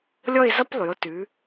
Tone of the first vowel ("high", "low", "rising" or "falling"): falling